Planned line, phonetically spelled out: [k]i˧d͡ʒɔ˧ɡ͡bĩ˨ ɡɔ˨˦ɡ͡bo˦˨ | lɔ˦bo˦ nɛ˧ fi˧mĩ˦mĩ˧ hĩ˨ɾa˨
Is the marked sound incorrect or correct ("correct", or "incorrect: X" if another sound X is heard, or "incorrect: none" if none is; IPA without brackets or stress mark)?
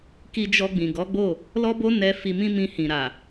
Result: correct